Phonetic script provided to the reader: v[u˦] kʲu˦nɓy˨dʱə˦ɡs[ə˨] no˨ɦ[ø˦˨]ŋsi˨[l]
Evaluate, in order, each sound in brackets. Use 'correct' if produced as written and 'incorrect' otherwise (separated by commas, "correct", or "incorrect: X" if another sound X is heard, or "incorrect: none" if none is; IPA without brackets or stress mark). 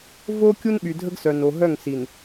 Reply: incorrect: o˦, incorrect: œ˨, incorrect: œ˦˨, incorrect: n